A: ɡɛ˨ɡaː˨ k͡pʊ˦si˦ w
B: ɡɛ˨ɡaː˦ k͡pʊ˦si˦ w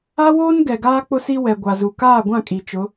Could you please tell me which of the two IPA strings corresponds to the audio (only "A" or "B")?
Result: B